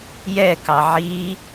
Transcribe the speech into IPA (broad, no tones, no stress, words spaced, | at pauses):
jɛkɑ ʕi